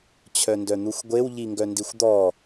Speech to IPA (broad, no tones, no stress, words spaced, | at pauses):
t͡ɕʰœndœn̪uxʷɡʷew ʎiŋɡœndixʷd̪ɔ